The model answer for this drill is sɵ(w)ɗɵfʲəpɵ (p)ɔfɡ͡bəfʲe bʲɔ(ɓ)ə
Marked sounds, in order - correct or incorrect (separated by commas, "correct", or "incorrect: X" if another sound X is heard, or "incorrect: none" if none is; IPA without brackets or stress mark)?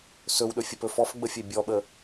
correct, incorrect: f, correct